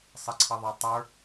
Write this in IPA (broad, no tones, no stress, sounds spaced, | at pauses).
sˤ ɪ ǀʰ ʌ ðˤ ɑ tˤ ə˞